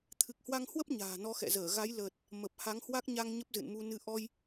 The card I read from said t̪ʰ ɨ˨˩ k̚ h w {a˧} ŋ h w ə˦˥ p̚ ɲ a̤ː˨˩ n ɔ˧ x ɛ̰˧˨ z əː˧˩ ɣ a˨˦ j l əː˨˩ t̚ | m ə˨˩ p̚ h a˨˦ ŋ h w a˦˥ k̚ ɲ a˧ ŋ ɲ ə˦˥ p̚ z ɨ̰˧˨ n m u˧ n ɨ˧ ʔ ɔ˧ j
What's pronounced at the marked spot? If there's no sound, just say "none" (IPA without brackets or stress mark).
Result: a˧